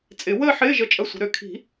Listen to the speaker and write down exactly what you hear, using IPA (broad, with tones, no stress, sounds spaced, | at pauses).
t͡sʼ ɪ˨˩˦ w əː˥˧ ħ ɪː˧˥˧ ʒ ə˧˥˧ t͡ʃʼ ɐ˧˥˧ sʷ ə̤˨˩˦ ɾ ø˨˩˦ kʰ i̤˨˩˦